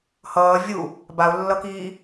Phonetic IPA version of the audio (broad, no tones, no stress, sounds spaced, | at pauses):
h ʌː vʲ u | b a ʊ̯ lː ʌ k iː